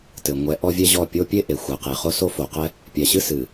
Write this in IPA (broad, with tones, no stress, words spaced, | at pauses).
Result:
tɘ˨ŋʷɛ˨˦ ʔɔ˦vʲɛ˦ʑɔ˦˨ pʲo˦ pʲe˦ ʔe˨xʷɛ˨qe˨χo˦ so˦fo˨qɛ˦ | pʲɛ˨ɕɨ˦ sɨ˨